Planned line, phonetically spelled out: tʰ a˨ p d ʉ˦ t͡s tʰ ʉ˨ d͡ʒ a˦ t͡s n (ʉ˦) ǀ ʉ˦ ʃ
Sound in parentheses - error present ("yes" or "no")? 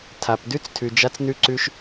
no